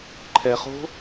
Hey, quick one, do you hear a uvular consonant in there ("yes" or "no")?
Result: yes